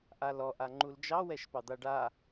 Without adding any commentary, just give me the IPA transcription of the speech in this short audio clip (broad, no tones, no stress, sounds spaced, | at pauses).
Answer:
ʔ a l ɔ ʔ a ŋ͡ǃ u l d͡ʒ ɑ w ɛ ʃ p ɑ d̪ a ɖ a